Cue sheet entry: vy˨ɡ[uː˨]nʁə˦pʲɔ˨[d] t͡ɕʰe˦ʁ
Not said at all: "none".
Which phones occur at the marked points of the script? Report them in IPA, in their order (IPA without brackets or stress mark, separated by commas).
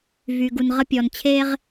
u˨, n